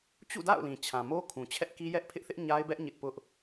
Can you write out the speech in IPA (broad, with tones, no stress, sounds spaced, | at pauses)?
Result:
t͡ɕ ṵ˦˨ d a̰˦˨ ʊ̯ l ĩ˨ t͡ɕʰ ã˨ m o˦ kʰ ũ˨ t͡ɕʰ ɛ˦ ʔ k i˦ j ɛ˦ ʔ pʰ ɪ˦ ʔ θ ɪ˦ ʔ ɲ a˦ ɪ̯ b ɛ˦ ʔ ɲ ɪ˦ ʔ p ʊ˦ ʔ